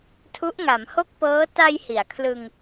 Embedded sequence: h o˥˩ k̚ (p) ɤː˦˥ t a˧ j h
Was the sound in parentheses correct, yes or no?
yes